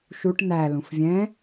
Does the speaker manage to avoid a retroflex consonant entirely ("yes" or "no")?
no